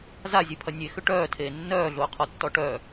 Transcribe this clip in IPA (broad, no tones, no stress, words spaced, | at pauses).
zazʲepʰɐ nʲexʏ ʈœːtʰeː nːœːɮʊːqʰɔtːɔ ʈœ